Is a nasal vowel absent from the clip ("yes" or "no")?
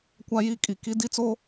yes